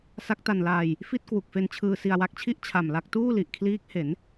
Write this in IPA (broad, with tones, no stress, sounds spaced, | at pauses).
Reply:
s a˦˥ k̚ t a˧ n l aː˧ j | f i˥˩ t̚ k w u˨˩ k̚ f e˧ n t͡ɕʰ ɯː˧ s i˧ a̯ w a˦˥ k̚ t͡ɕʰ i˥˩ ʔ t͡ɕʰ a˨˩ m l a˥˩ k̚ t uː˥˩ l i˨˩ ʔ kʰ l iː˦˥ k̚ h e˩˦ n